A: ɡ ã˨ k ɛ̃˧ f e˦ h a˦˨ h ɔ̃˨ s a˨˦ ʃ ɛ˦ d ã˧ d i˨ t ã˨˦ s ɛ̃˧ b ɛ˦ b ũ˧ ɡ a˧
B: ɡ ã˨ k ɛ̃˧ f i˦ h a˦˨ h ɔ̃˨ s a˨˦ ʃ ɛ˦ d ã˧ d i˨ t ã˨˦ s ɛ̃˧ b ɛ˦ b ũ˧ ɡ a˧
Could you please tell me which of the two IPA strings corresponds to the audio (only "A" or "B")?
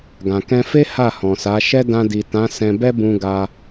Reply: A